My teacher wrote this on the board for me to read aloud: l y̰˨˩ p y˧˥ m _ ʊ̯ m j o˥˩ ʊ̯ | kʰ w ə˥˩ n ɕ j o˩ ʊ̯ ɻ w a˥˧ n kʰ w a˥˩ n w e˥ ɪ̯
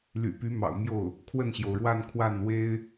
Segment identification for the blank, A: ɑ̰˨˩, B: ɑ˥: A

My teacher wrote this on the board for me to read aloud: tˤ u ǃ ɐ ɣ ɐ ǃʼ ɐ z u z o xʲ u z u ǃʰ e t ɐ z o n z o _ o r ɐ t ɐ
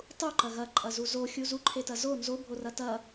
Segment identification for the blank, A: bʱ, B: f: A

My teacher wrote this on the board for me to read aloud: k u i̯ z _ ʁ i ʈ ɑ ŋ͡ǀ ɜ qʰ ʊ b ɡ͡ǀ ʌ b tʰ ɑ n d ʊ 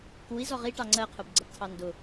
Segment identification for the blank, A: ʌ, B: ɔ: B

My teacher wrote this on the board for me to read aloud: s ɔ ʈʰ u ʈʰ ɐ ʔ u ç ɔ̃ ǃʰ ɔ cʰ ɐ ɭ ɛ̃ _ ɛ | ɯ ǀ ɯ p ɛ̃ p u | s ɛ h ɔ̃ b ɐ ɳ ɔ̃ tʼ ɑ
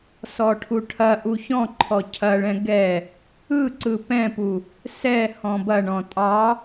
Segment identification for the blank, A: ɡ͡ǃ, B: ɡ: B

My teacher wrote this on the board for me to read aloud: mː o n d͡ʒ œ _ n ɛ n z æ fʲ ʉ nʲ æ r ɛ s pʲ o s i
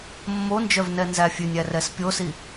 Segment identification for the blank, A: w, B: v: B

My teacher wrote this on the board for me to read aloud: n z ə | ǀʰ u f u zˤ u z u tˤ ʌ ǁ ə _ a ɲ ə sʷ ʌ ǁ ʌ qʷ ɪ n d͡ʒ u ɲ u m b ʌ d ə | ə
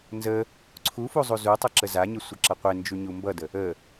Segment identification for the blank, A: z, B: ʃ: A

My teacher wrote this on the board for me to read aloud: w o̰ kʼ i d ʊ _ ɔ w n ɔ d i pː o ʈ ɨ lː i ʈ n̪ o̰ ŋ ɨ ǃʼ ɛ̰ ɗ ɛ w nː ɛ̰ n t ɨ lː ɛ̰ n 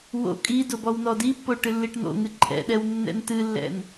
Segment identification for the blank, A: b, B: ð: A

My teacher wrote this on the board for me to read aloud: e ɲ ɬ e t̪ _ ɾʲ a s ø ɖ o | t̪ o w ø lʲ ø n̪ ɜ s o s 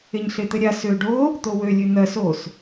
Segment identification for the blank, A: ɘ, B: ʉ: A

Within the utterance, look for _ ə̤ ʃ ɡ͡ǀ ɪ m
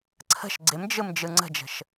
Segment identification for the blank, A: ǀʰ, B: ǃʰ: A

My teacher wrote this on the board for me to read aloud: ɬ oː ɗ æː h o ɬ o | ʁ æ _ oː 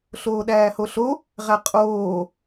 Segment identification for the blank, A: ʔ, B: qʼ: B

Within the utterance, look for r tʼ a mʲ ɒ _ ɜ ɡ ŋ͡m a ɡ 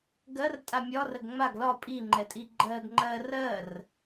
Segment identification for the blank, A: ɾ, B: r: B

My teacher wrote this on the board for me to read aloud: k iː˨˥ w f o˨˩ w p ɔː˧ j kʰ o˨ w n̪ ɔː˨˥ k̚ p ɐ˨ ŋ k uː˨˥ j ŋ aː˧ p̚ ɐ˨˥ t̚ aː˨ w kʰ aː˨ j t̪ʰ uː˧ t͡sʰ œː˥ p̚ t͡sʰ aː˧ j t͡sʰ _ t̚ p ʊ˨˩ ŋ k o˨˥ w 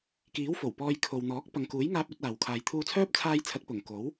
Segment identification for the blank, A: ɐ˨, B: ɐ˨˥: B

